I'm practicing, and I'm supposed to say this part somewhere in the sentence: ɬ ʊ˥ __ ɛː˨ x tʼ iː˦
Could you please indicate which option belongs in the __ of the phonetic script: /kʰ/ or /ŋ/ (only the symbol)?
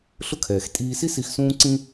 kʰ